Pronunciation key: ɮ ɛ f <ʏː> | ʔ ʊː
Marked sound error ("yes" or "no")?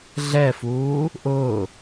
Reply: yes